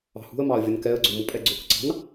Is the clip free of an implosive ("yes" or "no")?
yes